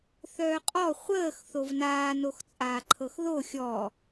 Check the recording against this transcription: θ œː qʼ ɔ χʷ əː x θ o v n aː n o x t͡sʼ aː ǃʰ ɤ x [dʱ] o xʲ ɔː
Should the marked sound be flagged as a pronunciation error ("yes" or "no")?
yes